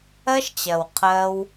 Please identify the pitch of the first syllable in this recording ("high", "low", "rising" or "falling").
high